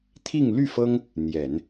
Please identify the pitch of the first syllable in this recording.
falling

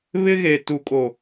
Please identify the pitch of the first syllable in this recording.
high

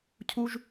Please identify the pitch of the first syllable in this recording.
high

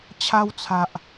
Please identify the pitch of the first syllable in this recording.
high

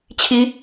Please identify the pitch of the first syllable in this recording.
rising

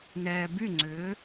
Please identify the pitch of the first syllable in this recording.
low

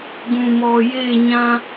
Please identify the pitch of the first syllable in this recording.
low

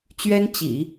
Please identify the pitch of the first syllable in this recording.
high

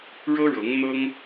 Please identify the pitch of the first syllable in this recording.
high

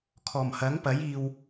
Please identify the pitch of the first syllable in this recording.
low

